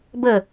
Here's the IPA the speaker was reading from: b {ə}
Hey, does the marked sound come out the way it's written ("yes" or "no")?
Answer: yes